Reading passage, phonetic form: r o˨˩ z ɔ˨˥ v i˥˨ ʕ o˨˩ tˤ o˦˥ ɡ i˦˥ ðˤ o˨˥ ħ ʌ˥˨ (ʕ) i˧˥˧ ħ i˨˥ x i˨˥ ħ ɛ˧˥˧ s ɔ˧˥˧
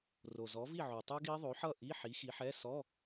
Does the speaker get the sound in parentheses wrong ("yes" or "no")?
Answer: yes